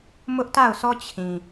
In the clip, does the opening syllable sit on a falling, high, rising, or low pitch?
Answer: high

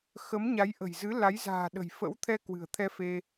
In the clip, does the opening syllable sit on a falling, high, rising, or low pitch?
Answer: rising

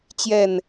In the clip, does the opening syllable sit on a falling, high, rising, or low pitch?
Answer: falling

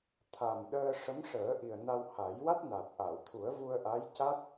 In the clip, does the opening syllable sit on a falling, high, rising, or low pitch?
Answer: low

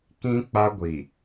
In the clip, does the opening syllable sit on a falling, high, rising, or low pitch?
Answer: high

